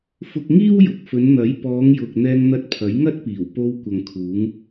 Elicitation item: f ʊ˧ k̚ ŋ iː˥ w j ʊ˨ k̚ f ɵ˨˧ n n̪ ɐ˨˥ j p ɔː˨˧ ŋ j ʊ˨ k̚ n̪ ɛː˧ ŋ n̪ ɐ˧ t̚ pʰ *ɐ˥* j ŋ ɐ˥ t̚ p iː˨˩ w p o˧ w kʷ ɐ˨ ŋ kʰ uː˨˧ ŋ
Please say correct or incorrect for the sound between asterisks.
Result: incorrect: ɐ˨˥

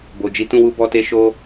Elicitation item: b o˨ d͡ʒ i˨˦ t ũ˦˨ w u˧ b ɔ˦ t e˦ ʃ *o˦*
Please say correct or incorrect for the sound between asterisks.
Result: correct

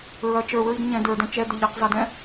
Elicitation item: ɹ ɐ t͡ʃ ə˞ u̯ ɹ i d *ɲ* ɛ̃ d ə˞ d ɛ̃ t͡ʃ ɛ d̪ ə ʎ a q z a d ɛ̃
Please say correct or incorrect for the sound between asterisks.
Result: correct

